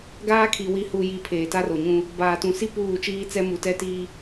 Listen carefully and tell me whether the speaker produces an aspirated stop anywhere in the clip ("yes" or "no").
yes